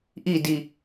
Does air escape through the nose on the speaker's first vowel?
no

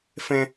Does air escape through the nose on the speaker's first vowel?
yes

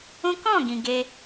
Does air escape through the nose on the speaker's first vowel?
yes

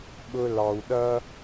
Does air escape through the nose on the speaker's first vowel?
no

